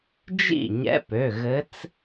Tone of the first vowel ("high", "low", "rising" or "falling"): falling